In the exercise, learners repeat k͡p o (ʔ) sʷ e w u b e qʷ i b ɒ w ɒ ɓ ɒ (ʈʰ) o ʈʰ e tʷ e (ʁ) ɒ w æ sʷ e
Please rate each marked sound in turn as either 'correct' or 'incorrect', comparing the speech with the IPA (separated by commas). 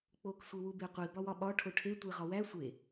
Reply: incorrect, correct, correct